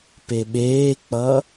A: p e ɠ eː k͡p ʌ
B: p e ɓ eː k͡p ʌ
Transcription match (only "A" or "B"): B